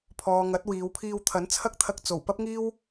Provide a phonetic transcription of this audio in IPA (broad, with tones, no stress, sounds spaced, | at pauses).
pʰ ɔː˨ ŋ ɐ˨˥ t̚ w iː˨˧ w pʰ iː˧ w t̪ʰ ɐ˨˥ n t͡sʰ ɐ˥ k̚ t̪ʰ ɐ˧ k̚ t͡s o˨˩ w p ɐ˥ p̚ ŋ iː˥ w